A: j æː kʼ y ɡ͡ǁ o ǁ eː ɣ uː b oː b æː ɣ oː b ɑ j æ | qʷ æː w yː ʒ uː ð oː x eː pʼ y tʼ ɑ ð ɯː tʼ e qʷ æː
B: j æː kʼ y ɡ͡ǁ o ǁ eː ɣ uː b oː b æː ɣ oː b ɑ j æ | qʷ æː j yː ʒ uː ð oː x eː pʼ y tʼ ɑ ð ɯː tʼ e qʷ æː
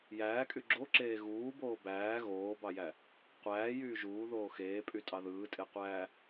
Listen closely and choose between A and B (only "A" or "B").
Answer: B